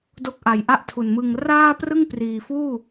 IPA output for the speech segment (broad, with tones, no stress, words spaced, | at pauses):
do˦˥k̚ʔa˨˩jʔa˥˩ʔ tʰu˨˩nmɯ˧ŋ raː˥˩prɯ˥˩ŋpriː˨˩fuː˥˩